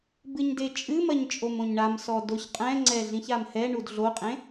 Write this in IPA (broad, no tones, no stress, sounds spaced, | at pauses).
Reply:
b ɨ ɲ d e t͡ʃʼ ɨ m ɐ ɲ t͡ʃʼ o m õ ɲ ɳ a m s ɔ d o ç qʼ ɛ̃ ŋ͡ǀ ɛ ɮ ĩ ç a m h ɛ ɳ u d ɮ o qʼ ẽ